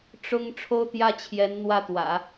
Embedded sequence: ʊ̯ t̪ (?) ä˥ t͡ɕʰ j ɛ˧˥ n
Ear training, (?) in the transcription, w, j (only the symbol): j